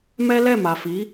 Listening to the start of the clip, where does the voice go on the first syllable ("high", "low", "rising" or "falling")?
high